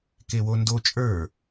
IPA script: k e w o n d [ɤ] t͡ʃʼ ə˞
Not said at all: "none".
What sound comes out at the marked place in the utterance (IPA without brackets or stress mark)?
o